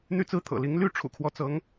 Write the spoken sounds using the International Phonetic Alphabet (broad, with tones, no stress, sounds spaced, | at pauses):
n̪ y˦ t͡s ɹ̩˦ t̪ʰ ɤ̰˨˩ l i˨˦ ŋ l y˥˨ ʈ͡ʂʰ ṵ˨˩ kʰ w ɔ˦ t͡s ɤ˨˦ ŋ